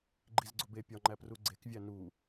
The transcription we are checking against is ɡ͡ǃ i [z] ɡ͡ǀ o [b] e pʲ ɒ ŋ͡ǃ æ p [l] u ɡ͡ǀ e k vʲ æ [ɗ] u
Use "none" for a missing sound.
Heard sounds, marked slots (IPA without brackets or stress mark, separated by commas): z, b, r, n